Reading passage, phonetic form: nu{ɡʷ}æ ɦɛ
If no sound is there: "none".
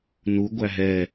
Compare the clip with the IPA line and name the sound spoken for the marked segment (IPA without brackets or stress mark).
ɡʷ